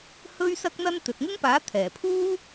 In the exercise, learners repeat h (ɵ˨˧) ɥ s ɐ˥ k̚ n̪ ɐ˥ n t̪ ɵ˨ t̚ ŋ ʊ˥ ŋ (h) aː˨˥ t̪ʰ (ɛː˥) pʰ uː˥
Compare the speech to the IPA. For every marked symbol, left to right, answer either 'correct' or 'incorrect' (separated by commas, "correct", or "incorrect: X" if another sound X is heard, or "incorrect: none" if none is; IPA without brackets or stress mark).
incorrect: ɵ˥, incorrect: p, incorrect: ɛː˨˩